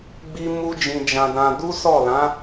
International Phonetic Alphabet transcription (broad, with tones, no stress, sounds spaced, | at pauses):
ɡ͡b i˦ m u˦ d͡ʒ ĩ˧ d͡ʒ ã˧ d ã˧ d u˦ s ɔ˦˨ l ã˨˦